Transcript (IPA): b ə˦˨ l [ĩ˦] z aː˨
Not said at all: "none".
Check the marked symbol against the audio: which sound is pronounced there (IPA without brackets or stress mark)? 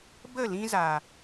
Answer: ĩ˦